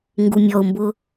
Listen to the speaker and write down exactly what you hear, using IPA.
ŋ ɡ u mʲ ɔ ʊ̯ m b ʊ

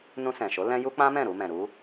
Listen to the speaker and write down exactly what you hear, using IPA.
n ũ˧ s ɛ̃˨ ʃ o˨˦ l ɛ̃˦ j u˦ k͡p ã˦ m ɛ̃˦˨ ɾ u˧ m ɛ̃˨ ɾ u˨˦

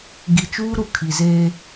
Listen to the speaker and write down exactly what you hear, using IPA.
ɡ i˨ t͡ʃ uː˦ ɾ u˨ kʰ i˨ z eː˦

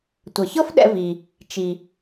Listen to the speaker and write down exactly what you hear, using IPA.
tʷ ɘ˩ ç ɤ˥ f ɗ ɛ̰˧ v i˩ | t͡ʃ i˩

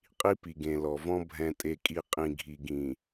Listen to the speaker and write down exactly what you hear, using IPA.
qʼ i˦ p i˨ ɡ ẽ˨ l ɔ˨ v ɔ̃˦ bʱ ɛ̃˨ tʼ e˨ kʼ i˨ qʼ ĩ˨ ɡʱ i˨ ɡ ĩ˨

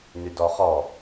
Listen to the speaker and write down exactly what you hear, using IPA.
n y d ɔ χ ɔ

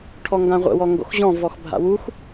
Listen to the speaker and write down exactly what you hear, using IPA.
ʈʰ ɔ ŋ ɡ ã ʁʷ ə̰ w ɔ ŋ ɡ o̰ x ʑ ɔ̃ v ɔ x bʱ a̰ w u x

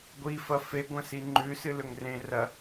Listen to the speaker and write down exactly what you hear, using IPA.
ɡʷ i f ɐ f e ɡʷ ɐ̃ s i ŋ͡ǃ ʉ s ɨ l ɵ ŋ r ẽ r ɐ

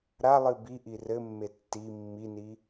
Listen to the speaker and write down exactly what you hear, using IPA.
ɾ a lˠ ɨ b i ʔ i r ɘ mː e tː i mː i n i

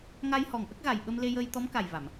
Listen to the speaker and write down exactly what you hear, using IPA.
ŋ a˧ j h ɔ˨˩ ŋ ʔ ə˦˥ k̚ ɣ a˨˩ j ɓ ə˧ m l e˧ j əː˧ j t̪ ɔ˧˥ m k a˨˩ j v a˨˩˨ m

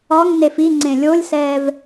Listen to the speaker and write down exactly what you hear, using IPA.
ɒ ŋ n e f i ŋ͡ǀ ẽ lʲ o lʲ s ɛː v

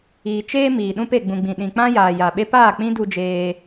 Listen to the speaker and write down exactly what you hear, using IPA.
iː˨ t͡ʃ eː˦ m iː˨ ɗ ũ˧ p e˨ ɡ͡b ũ˨ ɡ͡b ĩ˨ ɗ ĩ˨ k͡p ã˦ j aː˨ j a˨ ɓ e˦ p aː˦˨ k͡p ĩ˦ d u˧ d͡ʒ eː˧

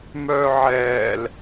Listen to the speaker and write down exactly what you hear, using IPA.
m œː ʕ ɛː l

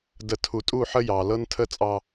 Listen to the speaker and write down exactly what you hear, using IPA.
d ə˨ tʰ u˨ tʼ u˦˨ ħ ə˦ j ɑ˨ l ɤ˦ n tʰ ə˦ t͡sʼ ɑ˦

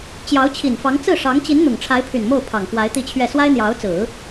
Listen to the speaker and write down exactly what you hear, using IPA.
t͡ɕ j ɑ˧˥ ʊ̯ t͡ɕʰ i˨˩ n f ɑ˧˥ ŋ t͡s ɹ̩˥˩ ʂ ɑ˧˥ ŋ t͡ɕ i˧˥ n n̪ ʊ˨˩ ŋ ʈ͡ʂʰ a˧˥ ɪ̯ pʰ y˨˩ n m o˥˩ ʊ̯ pʰ ɑ˨˩ ŋ k w a˧˥ ɪ̯ t̪ i˥˧ t͡ɕʰ ɥ ɛ˥˩ s w a˥ ɪ̯ n̪ j ɑ˧˥ ʊ̯ t͡s ɹ̩˨˩˦

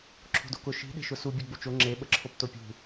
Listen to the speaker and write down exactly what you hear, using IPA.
ǁʰ o̤ d o k ʊ ʃ i̤ ɗ e̤ ʃ ʊ s u bʲ e ɡ͡b u t͡ʃ o ŋ͡ǁ e ɓ ə ǁʰ o p t o pʲ ṳ

